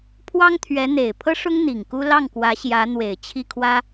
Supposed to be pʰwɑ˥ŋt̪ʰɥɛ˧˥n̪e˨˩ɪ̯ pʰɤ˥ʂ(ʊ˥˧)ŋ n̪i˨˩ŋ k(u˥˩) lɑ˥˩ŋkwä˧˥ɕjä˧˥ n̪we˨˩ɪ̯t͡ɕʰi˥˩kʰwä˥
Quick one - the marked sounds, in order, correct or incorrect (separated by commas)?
incorrect, incorrect